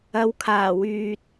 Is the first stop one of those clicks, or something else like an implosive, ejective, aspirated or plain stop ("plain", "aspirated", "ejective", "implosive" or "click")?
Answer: aspirated